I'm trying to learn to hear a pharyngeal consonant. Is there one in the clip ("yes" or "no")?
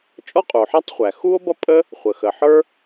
yes